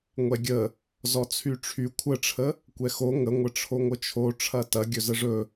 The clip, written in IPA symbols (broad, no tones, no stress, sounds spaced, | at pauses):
ŋʷ ɛ ɡʲ ə | z ɔ t͡sʰ y ʈ͡ʂʰ y kʷʰ ə ʈ͡ʂʰ ə | kʷ ɛ x o ŋ ə ŋʷ ə ʈ͡ʂʰ o ŋʷ ə t͡ʃʰ o ʈ͡ʂʰ ɐ t ɐ ɡʲ ɵ z ə ʐ ɵ